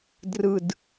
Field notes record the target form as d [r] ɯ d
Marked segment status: correct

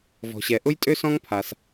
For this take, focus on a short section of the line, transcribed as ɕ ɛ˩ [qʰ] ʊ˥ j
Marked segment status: incorrect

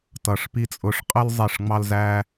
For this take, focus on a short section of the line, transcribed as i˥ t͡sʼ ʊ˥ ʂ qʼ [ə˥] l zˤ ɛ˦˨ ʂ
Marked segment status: correct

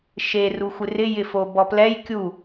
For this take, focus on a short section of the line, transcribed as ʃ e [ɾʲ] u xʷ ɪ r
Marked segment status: incorrect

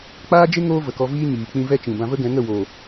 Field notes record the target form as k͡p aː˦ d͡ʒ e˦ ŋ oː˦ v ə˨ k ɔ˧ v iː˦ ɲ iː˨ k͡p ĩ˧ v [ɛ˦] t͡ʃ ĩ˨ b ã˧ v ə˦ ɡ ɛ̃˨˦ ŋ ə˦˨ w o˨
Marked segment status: correct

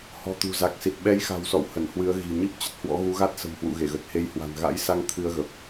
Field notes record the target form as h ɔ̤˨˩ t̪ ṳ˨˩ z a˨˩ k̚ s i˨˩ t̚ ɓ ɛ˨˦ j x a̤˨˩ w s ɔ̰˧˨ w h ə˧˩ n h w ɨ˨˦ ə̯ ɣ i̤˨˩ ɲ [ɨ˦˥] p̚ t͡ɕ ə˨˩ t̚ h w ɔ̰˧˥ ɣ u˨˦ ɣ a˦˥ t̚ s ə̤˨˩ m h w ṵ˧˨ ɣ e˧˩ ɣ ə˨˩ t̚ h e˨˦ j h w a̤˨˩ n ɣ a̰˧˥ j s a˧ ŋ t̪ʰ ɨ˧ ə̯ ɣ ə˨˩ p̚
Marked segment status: correct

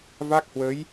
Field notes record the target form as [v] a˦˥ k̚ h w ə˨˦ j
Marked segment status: correct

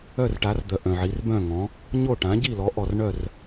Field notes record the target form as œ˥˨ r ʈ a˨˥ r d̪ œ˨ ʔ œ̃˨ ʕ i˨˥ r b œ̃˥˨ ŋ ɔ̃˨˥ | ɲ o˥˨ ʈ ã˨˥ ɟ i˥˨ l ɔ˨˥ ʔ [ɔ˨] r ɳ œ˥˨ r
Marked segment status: correct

